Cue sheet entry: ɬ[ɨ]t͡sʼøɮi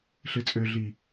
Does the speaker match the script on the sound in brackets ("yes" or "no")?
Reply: yes